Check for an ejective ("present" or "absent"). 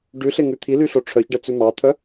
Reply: absent